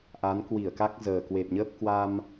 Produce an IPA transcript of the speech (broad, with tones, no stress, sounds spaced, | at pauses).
ʔ a˨˦ n k w i˧˩ ə̯ k a˦˥ k̚ z əː˨˩ k w e˨˩ p̚ ɲ əː˦˥ p̚ k w a˧ m